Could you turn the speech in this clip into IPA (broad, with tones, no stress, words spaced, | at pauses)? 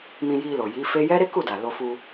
mĩ˧ji˧lo˨ ji˨˦fe˦ jɛ˦ɾe˦ku˦˨da˨ lo˧fu˧